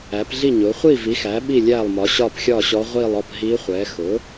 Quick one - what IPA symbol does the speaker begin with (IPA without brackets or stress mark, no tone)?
æ